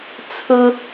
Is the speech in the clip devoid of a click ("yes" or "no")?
yes